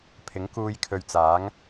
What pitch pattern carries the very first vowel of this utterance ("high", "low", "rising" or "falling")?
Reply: rising